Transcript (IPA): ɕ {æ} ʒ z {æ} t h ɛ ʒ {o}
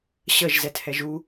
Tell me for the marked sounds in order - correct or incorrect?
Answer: incorrect: ə, incorrect: ɛ, incorrect: u

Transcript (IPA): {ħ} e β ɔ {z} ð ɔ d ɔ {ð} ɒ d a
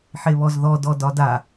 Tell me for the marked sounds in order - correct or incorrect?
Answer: correct, correct, incorrect: d

